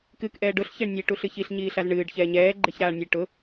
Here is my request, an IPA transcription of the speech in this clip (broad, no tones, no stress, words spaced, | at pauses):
kɨk ʔɛːɖʊɬ çeɳnʲe ʈuɬɨçiɬ ɲiːɬazɳɨːɖ çɛːɲɛː ɡ͡ǃeçɾaːɳnʲe ʈʊ